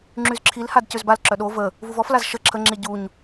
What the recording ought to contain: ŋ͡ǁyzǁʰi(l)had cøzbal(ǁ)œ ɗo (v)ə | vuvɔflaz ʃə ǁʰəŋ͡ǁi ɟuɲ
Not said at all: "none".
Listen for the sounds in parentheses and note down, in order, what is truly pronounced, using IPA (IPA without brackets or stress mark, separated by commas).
l, ǁ, v